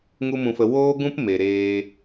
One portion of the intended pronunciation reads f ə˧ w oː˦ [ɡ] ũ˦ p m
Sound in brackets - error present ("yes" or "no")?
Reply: no